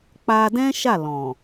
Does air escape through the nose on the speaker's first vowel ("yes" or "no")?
no